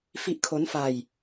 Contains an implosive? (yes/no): no